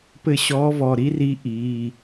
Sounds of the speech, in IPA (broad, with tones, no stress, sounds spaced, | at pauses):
p ɘ˦˨ ɕ ɔː˧˥ v ɔ˩˧˩ ɾ i˥ r i˧˥ ʔ iː˩˧˩